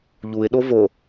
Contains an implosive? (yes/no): yes